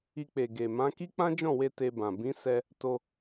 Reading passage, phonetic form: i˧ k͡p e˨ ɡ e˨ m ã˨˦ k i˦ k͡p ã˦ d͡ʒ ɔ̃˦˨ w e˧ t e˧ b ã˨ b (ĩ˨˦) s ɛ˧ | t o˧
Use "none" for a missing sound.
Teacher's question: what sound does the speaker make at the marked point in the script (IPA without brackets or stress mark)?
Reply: ĩ˨˦